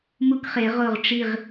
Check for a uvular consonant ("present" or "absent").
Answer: present